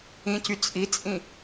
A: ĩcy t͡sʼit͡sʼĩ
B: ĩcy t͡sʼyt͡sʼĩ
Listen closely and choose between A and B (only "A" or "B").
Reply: A